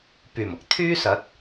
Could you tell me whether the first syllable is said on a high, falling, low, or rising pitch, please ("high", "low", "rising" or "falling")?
low